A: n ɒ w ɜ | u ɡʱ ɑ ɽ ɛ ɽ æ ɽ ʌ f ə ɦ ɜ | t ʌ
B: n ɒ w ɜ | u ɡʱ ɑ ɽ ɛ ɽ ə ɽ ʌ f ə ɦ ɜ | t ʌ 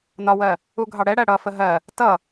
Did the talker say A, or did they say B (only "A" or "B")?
A